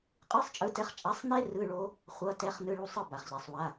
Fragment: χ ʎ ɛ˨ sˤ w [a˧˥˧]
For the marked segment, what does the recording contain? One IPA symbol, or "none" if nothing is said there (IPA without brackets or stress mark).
a˧˥˧